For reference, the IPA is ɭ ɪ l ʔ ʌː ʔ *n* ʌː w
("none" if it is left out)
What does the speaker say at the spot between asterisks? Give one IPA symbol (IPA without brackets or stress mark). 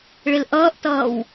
t